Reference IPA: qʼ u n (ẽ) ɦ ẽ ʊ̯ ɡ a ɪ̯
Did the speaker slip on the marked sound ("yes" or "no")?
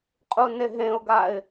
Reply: yes